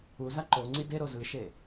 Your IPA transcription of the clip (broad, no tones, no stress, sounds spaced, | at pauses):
u z a ǃ o ŋ͡ǀ i d e ɾ o z ɯ ʃ e